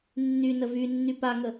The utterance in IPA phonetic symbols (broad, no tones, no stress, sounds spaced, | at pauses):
nː y n ə v y nː y p a ŋ ə